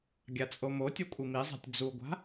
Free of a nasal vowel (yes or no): yes